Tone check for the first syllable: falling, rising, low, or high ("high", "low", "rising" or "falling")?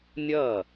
falling